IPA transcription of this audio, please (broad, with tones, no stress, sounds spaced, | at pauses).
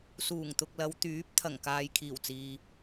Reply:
s uː˨˩ ŋ t̪ ʊ˨ k̚ l ɐ˨˧ w t̪ yː˨˥ p̚ t̪ʰ ɐ˨˩ ŋ k aː˨ j kʰ iː˨˩ w t͡s iː˨